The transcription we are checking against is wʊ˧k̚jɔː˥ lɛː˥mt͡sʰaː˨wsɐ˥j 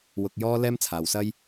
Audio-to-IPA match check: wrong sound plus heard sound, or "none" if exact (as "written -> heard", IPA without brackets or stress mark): none